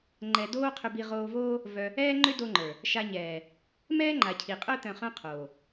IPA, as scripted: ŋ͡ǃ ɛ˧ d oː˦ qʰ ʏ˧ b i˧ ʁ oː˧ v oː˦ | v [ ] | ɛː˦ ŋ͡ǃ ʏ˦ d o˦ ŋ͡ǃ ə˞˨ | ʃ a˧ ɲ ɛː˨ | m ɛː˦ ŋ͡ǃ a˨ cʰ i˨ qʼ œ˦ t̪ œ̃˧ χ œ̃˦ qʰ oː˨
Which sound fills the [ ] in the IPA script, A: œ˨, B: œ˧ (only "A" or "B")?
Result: B